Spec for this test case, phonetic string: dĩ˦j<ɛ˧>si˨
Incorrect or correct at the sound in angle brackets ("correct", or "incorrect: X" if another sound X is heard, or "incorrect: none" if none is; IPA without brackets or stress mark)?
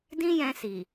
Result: incorrect: ɛ̃˧